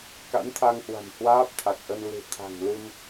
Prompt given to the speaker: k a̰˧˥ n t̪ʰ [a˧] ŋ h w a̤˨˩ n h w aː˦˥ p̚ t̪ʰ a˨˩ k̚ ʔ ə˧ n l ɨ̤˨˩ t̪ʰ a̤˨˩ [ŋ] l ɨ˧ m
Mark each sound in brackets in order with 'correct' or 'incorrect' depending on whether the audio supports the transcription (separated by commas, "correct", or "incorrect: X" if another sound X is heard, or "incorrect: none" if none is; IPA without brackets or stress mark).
correct, correct